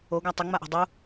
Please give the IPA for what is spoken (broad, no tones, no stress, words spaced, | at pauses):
oɡa tˤʊŋ͡maʔo̤ dˤu